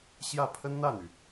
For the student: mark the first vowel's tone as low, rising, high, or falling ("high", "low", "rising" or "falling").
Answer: falling